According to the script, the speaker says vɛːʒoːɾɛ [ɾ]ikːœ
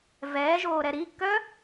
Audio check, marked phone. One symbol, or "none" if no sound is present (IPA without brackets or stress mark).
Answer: ɾ